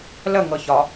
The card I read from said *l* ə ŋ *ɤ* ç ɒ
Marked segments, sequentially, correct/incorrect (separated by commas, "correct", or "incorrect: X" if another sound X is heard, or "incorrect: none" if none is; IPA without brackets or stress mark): correct, correct